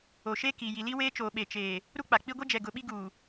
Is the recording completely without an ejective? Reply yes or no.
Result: yes